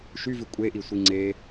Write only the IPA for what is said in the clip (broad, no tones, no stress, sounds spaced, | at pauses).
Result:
ʃ y v ʉ kʷʼ e ʔ i sʷ i ŋ͡ǀ e